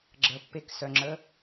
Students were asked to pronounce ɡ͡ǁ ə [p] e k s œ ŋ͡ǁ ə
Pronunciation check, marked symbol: incorrect: pː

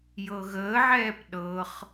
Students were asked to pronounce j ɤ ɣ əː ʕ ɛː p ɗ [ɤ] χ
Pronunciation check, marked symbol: correct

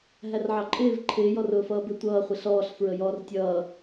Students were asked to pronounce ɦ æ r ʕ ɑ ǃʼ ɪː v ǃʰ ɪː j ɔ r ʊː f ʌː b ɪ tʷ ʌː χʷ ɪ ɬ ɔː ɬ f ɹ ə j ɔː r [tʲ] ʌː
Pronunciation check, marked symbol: correct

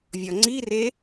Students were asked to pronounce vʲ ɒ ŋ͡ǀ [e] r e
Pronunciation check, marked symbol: incorrect: i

